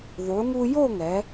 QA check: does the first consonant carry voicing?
yes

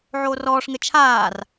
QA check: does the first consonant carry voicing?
yes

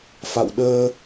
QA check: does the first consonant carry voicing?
no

